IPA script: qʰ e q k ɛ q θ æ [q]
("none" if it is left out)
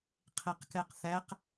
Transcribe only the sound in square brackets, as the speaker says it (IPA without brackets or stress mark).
q